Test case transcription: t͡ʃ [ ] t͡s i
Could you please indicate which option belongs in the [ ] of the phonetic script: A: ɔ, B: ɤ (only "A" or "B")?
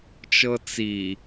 B